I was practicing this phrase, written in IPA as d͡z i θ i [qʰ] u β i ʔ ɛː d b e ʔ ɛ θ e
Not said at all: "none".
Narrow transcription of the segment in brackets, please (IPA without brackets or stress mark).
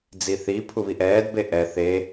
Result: pʰ